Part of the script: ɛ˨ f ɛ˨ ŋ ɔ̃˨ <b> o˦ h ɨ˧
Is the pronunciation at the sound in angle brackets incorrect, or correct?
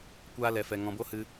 correct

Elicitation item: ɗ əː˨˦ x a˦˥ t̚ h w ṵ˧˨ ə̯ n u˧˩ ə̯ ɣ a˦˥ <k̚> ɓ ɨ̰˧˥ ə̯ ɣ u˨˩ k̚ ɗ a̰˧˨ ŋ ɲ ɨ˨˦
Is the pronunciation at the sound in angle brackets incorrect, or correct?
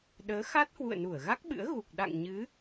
correct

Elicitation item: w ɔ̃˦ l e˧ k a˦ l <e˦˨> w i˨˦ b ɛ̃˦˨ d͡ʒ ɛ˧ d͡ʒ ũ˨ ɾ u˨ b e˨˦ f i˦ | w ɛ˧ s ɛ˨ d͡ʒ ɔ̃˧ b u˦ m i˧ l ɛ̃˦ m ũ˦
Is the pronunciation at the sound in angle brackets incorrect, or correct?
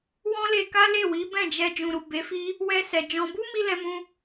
correct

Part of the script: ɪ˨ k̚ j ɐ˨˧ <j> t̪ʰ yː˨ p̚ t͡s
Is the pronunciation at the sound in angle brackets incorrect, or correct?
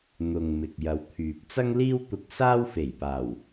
incorrect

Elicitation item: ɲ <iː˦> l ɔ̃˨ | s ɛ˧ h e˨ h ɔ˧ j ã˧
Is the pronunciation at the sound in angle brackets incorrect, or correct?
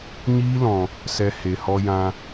correct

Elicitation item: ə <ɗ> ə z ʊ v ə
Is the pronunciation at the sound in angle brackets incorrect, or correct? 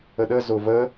correct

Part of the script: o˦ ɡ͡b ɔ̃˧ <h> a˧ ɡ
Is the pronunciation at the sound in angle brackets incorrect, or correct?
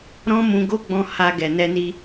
correct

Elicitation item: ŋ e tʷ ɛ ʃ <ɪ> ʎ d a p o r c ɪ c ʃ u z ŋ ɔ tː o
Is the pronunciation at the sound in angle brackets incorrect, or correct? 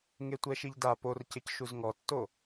incorrect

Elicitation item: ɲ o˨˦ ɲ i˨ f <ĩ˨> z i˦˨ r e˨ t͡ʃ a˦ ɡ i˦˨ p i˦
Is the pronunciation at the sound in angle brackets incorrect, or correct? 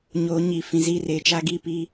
correct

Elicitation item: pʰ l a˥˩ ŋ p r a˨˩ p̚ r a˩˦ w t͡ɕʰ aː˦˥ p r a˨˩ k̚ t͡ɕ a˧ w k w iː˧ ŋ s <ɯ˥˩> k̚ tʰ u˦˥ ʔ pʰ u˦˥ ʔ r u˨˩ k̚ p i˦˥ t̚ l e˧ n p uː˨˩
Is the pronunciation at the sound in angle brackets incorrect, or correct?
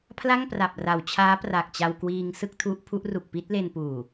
correct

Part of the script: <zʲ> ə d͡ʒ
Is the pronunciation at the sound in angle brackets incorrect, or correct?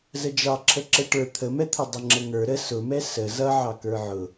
incorrect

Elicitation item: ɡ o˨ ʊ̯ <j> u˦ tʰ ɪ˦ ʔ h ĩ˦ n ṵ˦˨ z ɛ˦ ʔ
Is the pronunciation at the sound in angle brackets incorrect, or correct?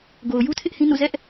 correct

